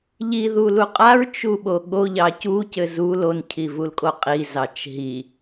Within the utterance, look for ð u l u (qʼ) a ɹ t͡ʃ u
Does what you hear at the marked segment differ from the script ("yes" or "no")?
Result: no